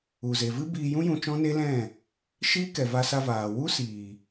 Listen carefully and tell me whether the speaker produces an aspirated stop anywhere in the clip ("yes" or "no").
no